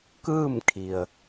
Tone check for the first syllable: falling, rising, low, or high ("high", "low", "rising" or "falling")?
falling